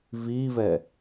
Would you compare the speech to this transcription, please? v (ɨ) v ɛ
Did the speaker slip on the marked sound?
yes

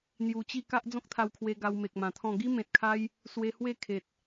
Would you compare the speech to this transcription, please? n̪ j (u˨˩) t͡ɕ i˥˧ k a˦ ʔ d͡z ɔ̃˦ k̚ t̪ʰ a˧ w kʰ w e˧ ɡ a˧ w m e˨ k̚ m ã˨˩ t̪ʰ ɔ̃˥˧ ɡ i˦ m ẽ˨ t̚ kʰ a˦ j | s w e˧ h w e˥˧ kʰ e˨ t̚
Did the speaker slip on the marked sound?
no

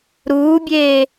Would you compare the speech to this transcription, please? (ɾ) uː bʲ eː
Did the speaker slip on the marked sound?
no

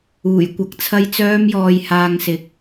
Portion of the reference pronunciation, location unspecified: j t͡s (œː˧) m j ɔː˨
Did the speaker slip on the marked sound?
no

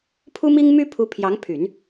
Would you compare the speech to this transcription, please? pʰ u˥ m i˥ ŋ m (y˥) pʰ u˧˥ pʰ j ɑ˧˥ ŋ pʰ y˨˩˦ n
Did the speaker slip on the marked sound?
no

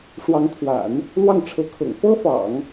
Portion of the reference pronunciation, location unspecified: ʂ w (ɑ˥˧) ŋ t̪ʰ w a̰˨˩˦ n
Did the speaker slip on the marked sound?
yes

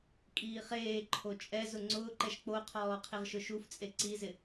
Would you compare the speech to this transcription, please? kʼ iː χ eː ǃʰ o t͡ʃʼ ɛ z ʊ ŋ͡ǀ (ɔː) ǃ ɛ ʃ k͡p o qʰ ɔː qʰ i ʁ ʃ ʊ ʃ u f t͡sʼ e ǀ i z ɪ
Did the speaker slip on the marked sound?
yes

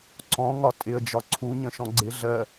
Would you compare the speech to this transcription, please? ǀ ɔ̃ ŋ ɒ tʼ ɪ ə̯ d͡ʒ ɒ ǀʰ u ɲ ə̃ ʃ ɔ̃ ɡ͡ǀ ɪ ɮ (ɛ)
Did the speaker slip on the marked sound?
yes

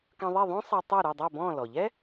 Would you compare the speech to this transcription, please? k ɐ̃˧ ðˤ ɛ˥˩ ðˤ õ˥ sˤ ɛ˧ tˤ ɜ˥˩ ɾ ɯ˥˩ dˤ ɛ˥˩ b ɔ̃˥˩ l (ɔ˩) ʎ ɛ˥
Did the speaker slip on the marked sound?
no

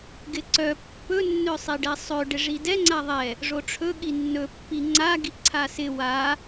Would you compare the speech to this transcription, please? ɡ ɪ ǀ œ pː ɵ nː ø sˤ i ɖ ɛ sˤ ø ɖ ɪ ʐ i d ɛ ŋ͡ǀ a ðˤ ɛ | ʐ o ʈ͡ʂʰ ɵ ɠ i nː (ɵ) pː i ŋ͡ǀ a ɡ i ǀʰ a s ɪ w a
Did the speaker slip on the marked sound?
no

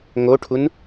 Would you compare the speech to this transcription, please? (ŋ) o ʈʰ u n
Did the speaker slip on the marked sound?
no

